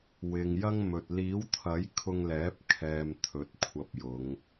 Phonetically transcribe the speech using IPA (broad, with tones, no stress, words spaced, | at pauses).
wɪ˨ŋjɐ˥ŋmɵ˨t̚ liː˨˥wt̪ʰɐ˨˥j kʰʊ˧ŋlɛː˨˥p̚ kʰɛː˧mt̪ʰɵ˨˥t̚ kʷʰɐ˧p̚jʊ˨˧ŋ